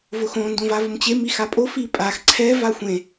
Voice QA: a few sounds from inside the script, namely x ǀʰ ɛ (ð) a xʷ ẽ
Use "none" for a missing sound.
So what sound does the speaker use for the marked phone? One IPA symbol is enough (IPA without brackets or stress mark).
v